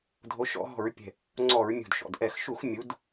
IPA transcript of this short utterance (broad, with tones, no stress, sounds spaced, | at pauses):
dʱ o˨˦ ʃ ɔ̰˧˩˧ ɦ ɔ̤˧˩˧ ɹ pʲ ɛ̤˨˩ | ŋ͡ǀ ɔ˧˩˧ ɹ mʲ ṳ˨˩ d ʃ ɔ̰˨˩ d ʔ ɛ˧˩˧ x ʃ u˧˩˧ x mʲ u˨˦ d